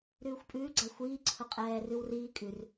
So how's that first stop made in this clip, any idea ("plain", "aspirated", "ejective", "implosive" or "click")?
ejective